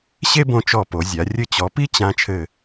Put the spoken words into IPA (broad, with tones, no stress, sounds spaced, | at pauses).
ɕ e˥ b õ˧ t͡ʃ ɔ˧˩ p o˩˧ zʲ a˩˧ rʲ ɘ˧˩ t͡ɕ ɔ˩˧ p i˥ t͡ɕ ã˧ t͡ʃʰ ɘ˧˩